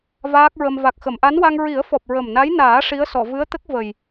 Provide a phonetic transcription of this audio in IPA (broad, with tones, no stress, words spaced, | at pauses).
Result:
vaː˦˥k̚ɹə˧m va˨˩k̚xə˨˩˨mʔa˧˥nwa˧ŋ ɹi˨˩˦ə̯fɔ˨˩p̚ ɹə˨˩mna˧˥jnaː˨˩˦ ʂi˧˥ə̯sɔ˨˩˨ vɨ˧˥ə̯t̪ə˦˥k̚ və˨˩j